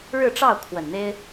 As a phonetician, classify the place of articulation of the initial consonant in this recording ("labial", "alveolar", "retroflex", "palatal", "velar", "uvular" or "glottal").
retroflex